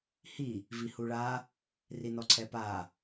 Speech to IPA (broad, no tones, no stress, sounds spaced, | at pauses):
h i | v i h u ɭ a | r i n ɔ ǀʰ ɛ p a